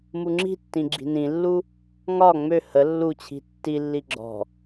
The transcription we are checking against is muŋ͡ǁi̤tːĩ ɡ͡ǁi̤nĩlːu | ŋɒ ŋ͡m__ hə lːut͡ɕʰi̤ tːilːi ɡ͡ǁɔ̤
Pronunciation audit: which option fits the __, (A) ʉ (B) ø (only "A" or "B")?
B